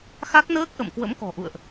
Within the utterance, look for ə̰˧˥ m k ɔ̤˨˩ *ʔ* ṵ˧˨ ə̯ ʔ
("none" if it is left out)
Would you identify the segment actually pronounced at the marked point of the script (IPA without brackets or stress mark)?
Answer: ʔ